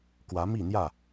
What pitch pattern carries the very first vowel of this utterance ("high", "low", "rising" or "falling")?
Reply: rising